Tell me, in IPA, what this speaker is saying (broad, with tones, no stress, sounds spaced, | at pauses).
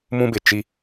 m ũ˦ b ɪ˨ t͡ʃ i˦